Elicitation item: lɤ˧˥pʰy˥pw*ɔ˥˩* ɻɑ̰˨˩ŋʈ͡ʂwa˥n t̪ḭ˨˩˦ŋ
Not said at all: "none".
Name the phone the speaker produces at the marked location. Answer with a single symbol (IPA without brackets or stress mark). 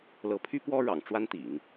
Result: ɔ˥